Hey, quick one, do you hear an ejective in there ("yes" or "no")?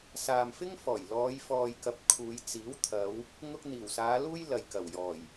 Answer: no